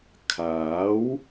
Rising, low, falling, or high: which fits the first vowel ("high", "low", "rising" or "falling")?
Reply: rising